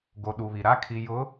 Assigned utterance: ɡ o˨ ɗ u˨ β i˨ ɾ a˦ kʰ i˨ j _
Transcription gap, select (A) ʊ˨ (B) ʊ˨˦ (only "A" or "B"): B